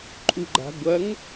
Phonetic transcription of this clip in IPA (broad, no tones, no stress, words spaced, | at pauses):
ǃʼuɡ͡ǃa̤ ɡʷɐŋ